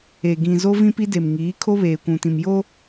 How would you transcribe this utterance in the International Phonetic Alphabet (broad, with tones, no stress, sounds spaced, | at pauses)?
e˨ ɡ ĩ˨ z o˦ v ĩ˦ p i˦ d e˨ m ŋ iː˨˦ kʰ o˦ β eː˨ kʷ ũ˨ t ĩ˨ m j o˦